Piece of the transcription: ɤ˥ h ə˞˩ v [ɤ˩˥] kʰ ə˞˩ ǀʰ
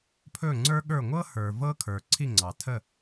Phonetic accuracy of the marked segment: incorrect: ɤ˥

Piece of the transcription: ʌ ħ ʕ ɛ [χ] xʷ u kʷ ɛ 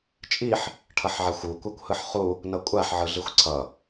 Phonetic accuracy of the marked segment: incorrect: none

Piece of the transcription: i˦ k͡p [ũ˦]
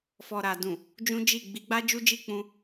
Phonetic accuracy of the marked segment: correct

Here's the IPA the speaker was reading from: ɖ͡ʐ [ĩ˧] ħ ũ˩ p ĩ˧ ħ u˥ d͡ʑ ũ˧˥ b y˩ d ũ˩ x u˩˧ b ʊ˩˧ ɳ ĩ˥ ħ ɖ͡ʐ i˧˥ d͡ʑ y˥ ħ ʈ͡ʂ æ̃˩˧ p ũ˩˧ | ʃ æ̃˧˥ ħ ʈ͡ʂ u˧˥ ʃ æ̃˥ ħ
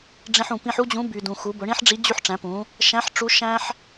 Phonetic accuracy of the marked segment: correct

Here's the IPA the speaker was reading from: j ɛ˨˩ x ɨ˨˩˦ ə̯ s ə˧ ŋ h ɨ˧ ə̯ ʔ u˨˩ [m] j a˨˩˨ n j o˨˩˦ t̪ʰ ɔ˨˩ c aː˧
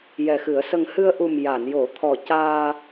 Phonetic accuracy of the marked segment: correct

